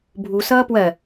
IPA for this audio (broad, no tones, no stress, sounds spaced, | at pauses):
bʱ u s ʌː p w ɜ